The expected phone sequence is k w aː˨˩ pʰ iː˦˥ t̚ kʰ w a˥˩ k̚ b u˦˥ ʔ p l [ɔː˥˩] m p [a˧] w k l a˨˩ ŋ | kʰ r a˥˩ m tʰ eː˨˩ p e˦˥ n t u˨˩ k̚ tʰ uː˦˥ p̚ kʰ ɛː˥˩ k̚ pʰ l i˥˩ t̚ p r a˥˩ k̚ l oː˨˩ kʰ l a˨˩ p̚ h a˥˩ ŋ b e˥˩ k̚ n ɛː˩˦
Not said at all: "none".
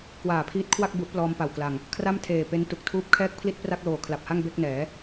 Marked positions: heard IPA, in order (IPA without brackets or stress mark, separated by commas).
ɔː˧, a˨˩